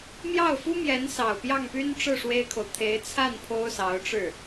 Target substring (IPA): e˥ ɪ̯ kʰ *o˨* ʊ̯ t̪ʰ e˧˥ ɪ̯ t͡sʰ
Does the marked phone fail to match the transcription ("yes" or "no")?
no